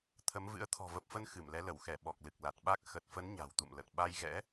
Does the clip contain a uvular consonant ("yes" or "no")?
no